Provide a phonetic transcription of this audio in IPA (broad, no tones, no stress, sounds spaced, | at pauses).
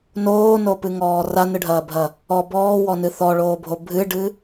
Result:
n oː n o p ɨ ŋ ɔː r a n ɨ ɖʱ ɐː bʱ ɐ | ɔ b ɔː w ɔ n ɨ θ ɔ ɭ oː bʱ o bʱ ɨ ɖ ɨ